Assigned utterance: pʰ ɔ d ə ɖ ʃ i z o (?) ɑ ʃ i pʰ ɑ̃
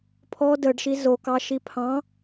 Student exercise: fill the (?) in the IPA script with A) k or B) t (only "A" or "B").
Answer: A